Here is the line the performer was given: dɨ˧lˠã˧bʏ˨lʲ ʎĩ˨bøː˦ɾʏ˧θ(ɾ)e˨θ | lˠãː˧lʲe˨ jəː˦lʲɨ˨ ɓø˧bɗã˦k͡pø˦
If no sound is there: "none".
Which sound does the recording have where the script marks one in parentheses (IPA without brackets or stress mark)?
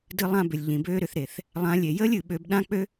ɾ